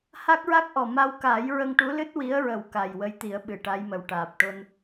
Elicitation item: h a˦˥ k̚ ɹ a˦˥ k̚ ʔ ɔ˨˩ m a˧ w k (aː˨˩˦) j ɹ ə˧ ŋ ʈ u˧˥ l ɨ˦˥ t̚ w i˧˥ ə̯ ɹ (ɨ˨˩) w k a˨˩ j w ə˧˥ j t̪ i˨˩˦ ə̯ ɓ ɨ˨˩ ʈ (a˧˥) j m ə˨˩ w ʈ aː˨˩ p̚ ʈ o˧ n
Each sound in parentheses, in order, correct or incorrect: correct, incorrect, correct

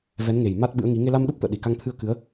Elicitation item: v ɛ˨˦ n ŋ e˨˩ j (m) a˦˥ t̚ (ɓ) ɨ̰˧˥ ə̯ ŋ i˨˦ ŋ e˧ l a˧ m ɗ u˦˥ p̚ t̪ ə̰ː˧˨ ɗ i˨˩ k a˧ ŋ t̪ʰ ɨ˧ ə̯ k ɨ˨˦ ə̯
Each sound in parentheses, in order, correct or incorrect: correct, correct

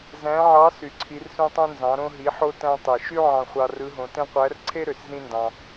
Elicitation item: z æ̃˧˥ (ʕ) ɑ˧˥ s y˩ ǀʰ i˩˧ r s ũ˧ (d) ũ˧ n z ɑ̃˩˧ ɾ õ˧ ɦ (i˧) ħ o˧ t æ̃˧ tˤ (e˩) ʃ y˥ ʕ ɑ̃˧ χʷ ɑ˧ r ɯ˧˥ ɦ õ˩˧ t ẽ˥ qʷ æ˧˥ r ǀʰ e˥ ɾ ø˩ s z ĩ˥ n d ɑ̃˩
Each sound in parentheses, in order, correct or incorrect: correct, incorrect, incorrect, correct

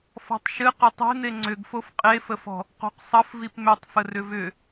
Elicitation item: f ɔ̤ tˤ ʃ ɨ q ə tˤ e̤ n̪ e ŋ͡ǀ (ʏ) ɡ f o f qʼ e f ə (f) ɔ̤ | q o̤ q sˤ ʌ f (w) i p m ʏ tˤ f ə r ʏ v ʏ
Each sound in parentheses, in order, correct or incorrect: correct, correct, incorrect

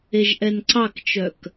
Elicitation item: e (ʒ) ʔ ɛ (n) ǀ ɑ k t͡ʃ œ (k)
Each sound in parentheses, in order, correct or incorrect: correct, correct, correct

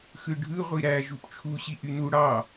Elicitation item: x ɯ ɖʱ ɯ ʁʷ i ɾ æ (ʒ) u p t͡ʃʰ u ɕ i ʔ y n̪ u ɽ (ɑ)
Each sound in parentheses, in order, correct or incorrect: correct, correct

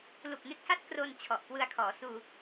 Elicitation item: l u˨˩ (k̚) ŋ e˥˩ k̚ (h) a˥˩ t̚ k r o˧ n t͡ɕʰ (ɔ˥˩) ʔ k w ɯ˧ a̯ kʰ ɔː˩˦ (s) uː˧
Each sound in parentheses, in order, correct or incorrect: correct, correct, incorrect, correct

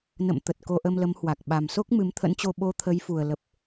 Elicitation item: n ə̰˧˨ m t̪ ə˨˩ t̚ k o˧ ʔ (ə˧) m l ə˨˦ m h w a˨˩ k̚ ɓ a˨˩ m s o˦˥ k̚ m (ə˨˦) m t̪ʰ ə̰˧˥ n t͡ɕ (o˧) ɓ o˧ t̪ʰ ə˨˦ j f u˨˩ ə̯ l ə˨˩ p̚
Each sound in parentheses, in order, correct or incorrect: correct, incorrect, correct

